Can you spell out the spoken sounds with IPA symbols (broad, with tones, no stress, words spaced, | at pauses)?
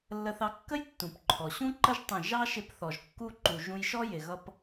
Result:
lːə˧θɑ˧ kːə˦j tːũ˨pǃʰɔ˨ ɕũ˦ǃə˦ʒ tˤə̃˦˨ ʒɑ˦ʃɪ˧pθɔ˨ʒ kːu˧ǃu˨ ʒũ˧jʃɔ˦ jɪ˨ɣʌ˧p